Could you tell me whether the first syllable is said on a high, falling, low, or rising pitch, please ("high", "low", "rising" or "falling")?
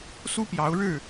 high